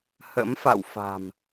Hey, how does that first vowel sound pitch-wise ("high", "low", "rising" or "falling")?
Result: rising